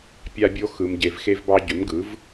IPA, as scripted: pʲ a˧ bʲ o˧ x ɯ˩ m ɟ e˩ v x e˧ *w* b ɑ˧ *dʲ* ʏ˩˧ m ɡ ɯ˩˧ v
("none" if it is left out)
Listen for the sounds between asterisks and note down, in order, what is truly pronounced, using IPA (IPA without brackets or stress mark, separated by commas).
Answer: v, ɟ